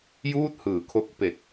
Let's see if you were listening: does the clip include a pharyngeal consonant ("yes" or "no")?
no